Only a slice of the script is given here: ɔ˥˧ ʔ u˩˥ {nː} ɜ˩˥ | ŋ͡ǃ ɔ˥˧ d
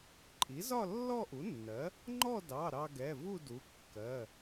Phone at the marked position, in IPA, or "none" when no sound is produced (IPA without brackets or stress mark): nː